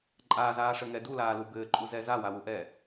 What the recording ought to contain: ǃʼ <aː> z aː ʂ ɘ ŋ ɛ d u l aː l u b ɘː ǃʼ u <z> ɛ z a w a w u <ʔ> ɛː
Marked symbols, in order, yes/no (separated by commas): yes, yes, yes